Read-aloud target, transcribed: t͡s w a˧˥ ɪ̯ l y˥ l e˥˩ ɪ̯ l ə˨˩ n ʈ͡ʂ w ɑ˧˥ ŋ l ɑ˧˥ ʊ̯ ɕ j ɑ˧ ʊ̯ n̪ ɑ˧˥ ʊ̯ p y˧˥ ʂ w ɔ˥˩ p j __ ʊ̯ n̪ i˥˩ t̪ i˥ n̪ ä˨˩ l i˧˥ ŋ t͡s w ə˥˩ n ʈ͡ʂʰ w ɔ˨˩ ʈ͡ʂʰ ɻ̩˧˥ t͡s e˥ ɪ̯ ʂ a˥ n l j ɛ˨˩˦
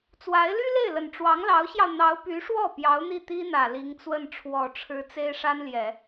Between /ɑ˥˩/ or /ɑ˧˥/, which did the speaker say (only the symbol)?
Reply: ɑ˧˥